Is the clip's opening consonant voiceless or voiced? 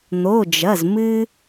voiced